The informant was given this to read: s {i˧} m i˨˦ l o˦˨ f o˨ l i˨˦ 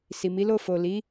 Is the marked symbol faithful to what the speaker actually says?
no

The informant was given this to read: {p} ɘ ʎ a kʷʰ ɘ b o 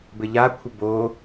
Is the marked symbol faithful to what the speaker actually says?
no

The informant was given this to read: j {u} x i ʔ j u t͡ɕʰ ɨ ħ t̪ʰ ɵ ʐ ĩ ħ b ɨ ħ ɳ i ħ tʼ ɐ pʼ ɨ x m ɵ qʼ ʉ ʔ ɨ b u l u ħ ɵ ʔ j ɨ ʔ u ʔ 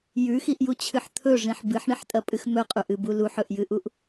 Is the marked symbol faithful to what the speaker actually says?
no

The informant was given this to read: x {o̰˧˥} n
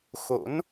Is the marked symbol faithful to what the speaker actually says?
yes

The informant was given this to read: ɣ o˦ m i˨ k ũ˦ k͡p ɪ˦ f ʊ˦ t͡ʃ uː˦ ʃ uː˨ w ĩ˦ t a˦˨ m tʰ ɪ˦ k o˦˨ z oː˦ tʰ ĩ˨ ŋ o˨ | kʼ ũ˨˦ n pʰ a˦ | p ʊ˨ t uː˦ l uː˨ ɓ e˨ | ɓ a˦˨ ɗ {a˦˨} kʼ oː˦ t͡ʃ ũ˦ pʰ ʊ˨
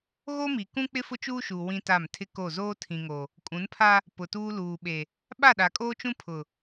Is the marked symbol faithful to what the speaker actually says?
no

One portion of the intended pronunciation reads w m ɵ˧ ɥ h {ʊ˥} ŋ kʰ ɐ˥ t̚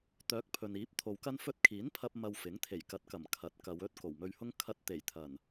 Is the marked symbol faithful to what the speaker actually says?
yes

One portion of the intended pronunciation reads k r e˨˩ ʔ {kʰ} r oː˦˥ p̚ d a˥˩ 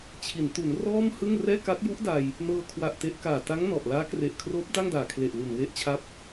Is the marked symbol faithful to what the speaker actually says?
yes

